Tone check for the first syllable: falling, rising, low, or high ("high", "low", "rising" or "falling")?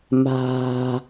low